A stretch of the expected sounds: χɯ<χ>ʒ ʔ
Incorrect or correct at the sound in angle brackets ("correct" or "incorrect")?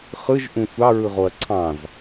incorrect